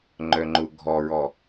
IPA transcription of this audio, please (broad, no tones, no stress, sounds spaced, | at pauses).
ŋ͡ǃ œ ŋ͡ǃ ʊ ɡʱ ɔ ɹ ɔ